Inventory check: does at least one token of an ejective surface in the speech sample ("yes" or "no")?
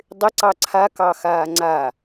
no